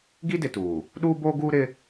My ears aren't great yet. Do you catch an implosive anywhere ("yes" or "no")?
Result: yes